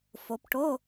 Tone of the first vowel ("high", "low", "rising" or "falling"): rising